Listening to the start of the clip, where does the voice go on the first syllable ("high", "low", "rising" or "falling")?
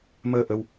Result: low